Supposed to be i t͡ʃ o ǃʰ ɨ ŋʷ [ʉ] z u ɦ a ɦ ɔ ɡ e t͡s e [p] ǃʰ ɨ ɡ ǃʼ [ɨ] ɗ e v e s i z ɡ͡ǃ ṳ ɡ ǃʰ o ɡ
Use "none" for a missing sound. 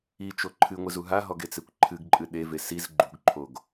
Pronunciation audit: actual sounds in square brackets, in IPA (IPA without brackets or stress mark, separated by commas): ɨ, kʷ, ɨ